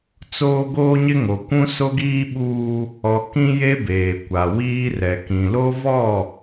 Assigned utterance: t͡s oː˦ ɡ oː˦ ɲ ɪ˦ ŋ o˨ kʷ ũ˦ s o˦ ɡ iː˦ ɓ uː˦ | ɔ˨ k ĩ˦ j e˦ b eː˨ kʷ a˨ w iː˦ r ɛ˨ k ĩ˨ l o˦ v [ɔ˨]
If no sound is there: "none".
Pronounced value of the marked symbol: ɔ˦˨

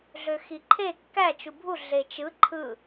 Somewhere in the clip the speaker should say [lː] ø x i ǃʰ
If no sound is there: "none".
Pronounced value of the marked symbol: ɮ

